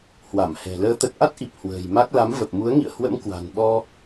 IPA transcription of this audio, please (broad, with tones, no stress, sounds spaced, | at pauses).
h w a˧˩ m h ɛ̤˨˩ l əː˨˦ t̪ ə˨˩ t̚ ʔ a˦˥ t̚ ʔ i˨˩ p̚ h w ə̤ː˨˩ j m a˦˥ k̚ l a˨˦ m v ə˨˩ p̚ m u˨˦ ə̯ ŋ ḭ˧˨ ə̯ h w ə̰˧˥ m k w a̤˨˩ n ɓ ɔ˧